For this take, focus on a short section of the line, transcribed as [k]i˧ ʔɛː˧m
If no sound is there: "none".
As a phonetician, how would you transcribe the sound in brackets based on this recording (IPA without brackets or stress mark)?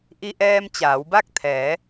ʔ